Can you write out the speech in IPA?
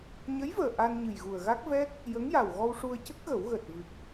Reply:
ɲ ə˧˥ j v əː˨˩ ʔ a˧ n ɲ ɨ˨˩ j ɣ u˨˩ ə̯ ɣ a˦˥ k̚ v ɛ˦˥ k̚ | j ə˧˥ ŋ j a˨˩ w ɣ ɔ˧ w ʂ u˧ ə̯ c ə˦˥ k̚ ɣ ə˨˩˦ w ɣ əː˨˩ t̚ v ɨ˨˩ k̚

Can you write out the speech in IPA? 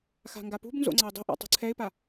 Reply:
x a̤ ŋ ɡ a p ṳ b n z o̰ ŋ͡ǀ a ɪ̯ dˤ ṳ ʔ a̰ tˤ ṳ ǀʰ ɛ ɪ̯ p a

